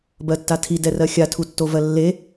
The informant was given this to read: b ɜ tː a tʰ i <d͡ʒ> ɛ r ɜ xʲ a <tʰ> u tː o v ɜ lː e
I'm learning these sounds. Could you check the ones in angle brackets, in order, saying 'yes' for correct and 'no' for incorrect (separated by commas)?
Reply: no, yes